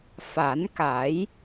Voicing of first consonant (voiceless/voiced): voiceless